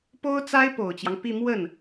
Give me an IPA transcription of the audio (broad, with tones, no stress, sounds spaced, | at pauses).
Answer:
p o˥ ʊ̯ t͡s a˥ ɪ̯ p o˨˩ ʊ̯ t͡ɕ j ɑ˦ ŋ p i˥˧ m w ə˥˩ n